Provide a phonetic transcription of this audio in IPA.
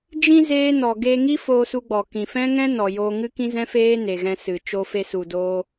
d͡ʒ ĩ˧ z eː˦ n ɔ˨ ɡ eː˧ ŋ i˦ f oː˧ s u˧ ɡ͡b ɔ˨ k ĩ˨ f ɛ̃˦ ŋ ɛ̃˦ n ɔ˨ j oː˧ ŋ ɨ˦ k ĩ˦ z ɛ̃˦ f eː˦ n e˨ ɣ ɛ̃˧ s ɨ˨ t͡ʃ o˧ f e˧ s u˨ d oː˧

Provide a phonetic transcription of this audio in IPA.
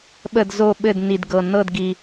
ɓ ə˦˨ d z o˦˨ ɓ ɘ˦˨ d n i˨˩ d ɡ ɤ˨˩ n ɤ˦˨ d ɡ i˨˩

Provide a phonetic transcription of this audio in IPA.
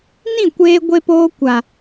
n ĩ˦˨ kʷ eː˧ ɡʷ e˧ p oː˧ kʷ a˨

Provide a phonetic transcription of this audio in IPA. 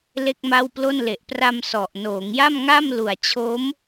l e˥˩ k̚ m a˥˩ w p l o˥˩ n l e˨˩ ʔ p r a˧ m s ɔ˨˩ ʔ n oː˩˦ ŋ j a˥˩ m ŋ a˥˩ m l u˨˩ a̯ t͡ɕʰ o˦˥ m

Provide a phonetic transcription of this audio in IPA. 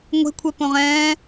ŋʷ e̤ kʷʰ ɛ p õ ʁ ɛ̃ː

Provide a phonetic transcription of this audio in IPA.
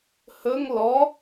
h ɵ ŋ l ɔ

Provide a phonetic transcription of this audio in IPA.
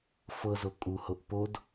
f ɤ z o kʼ u h o ʔ p o d

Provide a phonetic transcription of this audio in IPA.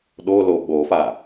ɗ o l o ɓ o f a

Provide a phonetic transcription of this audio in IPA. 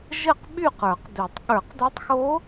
ʒ ɘ˥˨ q ɓ y˥˨ q ə˞˨˩˦ q d ø˨˩˦ tˤ ɠ ə˞˨˩˦ q d o˧˥ tˤ x o˧˥

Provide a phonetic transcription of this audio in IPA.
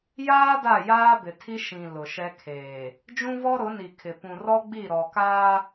j aː˦ d a˦˨ j aː˦ b ɪ˨ tʰ i˦ ʃ ĩ˨ l ʊ˨ ʃ ɛ˦ kʰ eː˨ | d͡ʒ ũ˦ v ɔ˦ ɾ ʊ˨˦ n i˨ kʰ ɪ˨ p ũ˨ r ɔ˦ ɡ͡b i˦˨ ɾ ɔ˨ k aː˦

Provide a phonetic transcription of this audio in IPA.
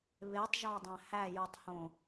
β e tˤ ʒ ɒ dˤ æ̃ h æ j u tˤ h õ

